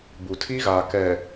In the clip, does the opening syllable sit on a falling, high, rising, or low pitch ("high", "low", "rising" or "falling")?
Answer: low